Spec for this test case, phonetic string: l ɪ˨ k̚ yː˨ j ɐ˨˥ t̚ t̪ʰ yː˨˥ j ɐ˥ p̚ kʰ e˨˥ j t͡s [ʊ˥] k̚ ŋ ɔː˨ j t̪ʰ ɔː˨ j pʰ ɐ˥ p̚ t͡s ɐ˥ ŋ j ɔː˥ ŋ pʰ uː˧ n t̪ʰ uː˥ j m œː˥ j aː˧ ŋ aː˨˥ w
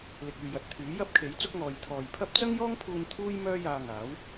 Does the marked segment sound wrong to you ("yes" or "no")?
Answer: no